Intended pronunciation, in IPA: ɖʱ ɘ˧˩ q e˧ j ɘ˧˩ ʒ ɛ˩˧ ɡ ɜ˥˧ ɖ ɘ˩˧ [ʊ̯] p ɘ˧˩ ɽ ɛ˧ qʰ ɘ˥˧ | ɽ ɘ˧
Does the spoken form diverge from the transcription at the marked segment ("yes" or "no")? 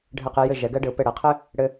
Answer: no